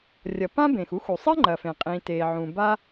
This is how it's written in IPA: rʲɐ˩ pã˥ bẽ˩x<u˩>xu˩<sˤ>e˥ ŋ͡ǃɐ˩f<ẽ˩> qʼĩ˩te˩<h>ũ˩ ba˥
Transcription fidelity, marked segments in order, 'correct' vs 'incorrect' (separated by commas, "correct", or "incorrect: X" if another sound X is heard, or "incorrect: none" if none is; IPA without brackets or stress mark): incorrect: u˥, correct, correct, incorrect: ʕ